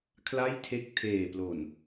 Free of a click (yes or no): yes